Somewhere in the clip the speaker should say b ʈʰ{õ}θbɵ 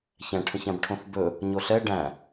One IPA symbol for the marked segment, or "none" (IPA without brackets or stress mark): õ